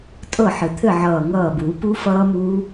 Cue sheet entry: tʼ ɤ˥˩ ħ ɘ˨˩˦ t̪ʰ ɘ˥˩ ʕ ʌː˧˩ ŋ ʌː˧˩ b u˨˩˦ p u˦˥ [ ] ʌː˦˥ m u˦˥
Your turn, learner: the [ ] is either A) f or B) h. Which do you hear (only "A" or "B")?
A